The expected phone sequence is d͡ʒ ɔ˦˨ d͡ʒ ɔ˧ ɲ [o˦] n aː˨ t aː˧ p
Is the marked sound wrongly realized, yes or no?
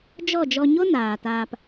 no